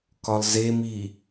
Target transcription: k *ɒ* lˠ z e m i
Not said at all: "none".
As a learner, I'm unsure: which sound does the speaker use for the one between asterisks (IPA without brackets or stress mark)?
ɒ